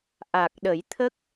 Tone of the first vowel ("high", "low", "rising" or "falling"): low